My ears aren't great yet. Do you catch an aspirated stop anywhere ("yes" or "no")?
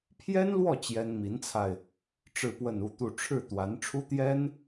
yes